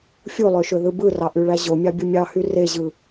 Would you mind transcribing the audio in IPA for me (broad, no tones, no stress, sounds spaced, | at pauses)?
fʲ u lˠ ø ʃ ø ð ɯ b ɯ r ɑ ʔ y ɭ æ ʑ o mʲ ɑ bʲ ɯ mʲ ɑ h y r e ʑ ɯ